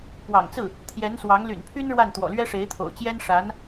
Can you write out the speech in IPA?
p w ɑ̰˨˩ ŋ t͡s ɹ̩˥˩ | t̪ʰ j ɛ˧˥ n s w ɑ˧˥ ŋ l y̰˨˩ n pʰ y˥ n ɻ w a˥˩ n t̪ w ɔ̰˨˩ l ɥ ɛ˥ ʂ e˧˥ ɪ̯ t̪ʰ o̰˨˩ ʊ̯ t͡ɕ j ɛ˥ n ʂ a˧˥ n

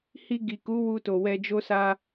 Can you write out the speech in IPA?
h i˧ ɡ i˨ k u˨˦ w u˧ t o˨ w ɛ˧ d͡ʒ o˦ s a˦

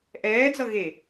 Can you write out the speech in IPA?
ʔ ɛː d͡z ʌ ɣ e

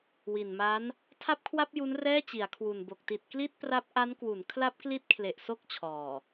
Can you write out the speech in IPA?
w i˨˩ n m a˦˥ n | tʰ a˥˩ p̚ kʰ w a˥˩ p̚ j u˦˥ n r ɛː˥˩ t͡ɕ i˩˦ a̯ kʰ w u˨˩ n b o˨˩ k̚ t i˨˩ t̚ k l i˥˩ t̚ p r a˦˥ p̚ ʔ a˦˥ n k w u˩˦ n kʰ l a˦˥ p̚ k l i˦˥ t̚ kʰ l e˨˩ ʔ s o˦˥ k̚ t͡ɕʰ ɔː˨˩

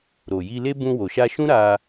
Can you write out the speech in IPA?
ɾ o˨ j i˧ l e˦ b ũ˧ w o˨ ʃ a˧ ʃ ũ˦ ɾ a˧

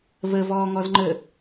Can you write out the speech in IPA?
v ə v ɔː ŋ ɔ z ŋ͡ǃ ə

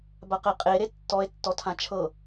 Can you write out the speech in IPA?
b a q e qʼ e ɾ e tː ɔ e̯ tː ɔ tʰ ã t͡ʃʰ ɤ

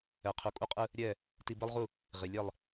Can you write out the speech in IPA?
ɛ˨ qʰ u˨ kʼ u˦ qʼ ɯ˦ | ɾʲ ɛ˦˨ | t i˦ b ɯ˦ lˠ ʁ u˦˨ | ʁ i˨ lʲ ɛ˦˨ lˠ

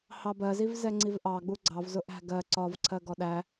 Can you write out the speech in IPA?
h ɑ b ɜ z i v z ɛ ŋ͡ǀ i v ʔ ɑ ɡ͡b u ɡ͡ǀ ɑ v z ʊ ʔ æ̤ ɡ ɜ ǀ ɒ v ǀʰ ɜ ɡ ɔ ɗ æ

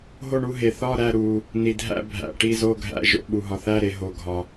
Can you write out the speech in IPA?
ɦ o˥˧ ɳ u˥˧ ɦ e˨ θ ɒ˥˧ ɾ æ˥˧ ɾ u˨ | n i˨ dʱ æ̰˥˧ bʱ æ̰˨ ʈ i˥˧ z o˥˧ ɡʱ æ̰˥˧ ʒ o̰˥˧ ɓ u˨ ɦ ɒ˨ θ æ˥˧ ɾ e˨ ɦ o˨ ɡʱ ɒ˨

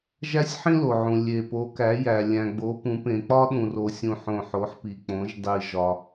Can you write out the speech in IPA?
ʒ æ˥ sʲ ħ ĩ˥ l o˨ ʕ ũ˨ lʲ e˨ p o˨˦ k æ˨˦ j æ˨ lʲ æ̃˨ ɡ͡b o˨˦ p ũ˨˦ p ẽ˨ k͡p ɒ˥ ɗ ũ˨ r o˨ sʲ ũ˨ ħ õ˨ ħ o˨˦ ħ p i˨ k͡p õ˨˦ ʒ dˤ i˨ ʒ ɒ˨

